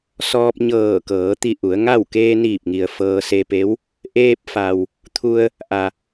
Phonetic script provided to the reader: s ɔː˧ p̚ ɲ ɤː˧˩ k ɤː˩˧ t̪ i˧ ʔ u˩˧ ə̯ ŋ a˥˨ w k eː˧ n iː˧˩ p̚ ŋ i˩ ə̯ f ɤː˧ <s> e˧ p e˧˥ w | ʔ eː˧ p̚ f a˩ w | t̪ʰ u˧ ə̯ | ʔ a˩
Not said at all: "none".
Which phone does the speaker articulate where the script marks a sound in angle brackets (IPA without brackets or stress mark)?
s